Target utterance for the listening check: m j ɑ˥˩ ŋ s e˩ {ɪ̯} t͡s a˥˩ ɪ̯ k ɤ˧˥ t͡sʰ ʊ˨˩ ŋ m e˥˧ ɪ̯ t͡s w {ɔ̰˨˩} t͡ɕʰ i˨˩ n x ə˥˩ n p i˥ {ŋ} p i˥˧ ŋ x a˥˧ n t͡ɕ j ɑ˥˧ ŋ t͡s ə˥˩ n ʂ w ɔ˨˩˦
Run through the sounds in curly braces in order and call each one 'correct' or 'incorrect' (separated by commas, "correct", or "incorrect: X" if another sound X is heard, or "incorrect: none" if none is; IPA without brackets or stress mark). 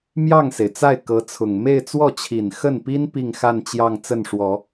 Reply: correct, incorrect: ɔ˥˩, incorrect: n